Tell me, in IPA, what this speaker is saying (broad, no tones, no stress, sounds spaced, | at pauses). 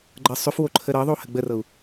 ɡ͡ǃ ɤ sˤ ʏ f w o ǃʰ ə ɾ ɤ ðˤ o h ə ɡ͡b ə r ɤ u̯